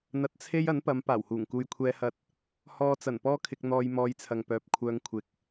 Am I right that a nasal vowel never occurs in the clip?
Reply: yes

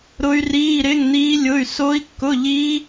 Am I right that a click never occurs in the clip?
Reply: yes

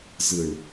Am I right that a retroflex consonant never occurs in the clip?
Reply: no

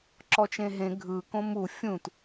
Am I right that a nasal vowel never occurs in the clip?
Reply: no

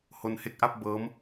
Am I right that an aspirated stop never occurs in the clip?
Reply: yes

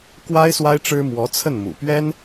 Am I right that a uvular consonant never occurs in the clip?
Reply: yes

